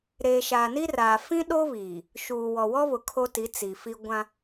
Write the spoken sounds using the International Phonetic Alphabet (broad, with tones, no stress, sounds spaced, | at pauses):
ɾ eː˨ ʃ aː˨ n i˦ r aː˨ f ĩ˦ ɗ o˦ β iː˨ | ʃ uː˨ w ɔ˨ w ɔ˦ β ʊ˨ kʰ o˦ t i˨˦ t͡s i˨ f i˦ ɡʷ ã˦